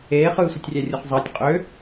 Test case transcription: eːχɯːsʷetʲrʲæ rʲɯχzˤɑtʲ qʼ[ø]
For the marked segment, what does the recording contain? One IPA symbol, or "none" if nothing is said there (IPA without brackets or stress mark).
ø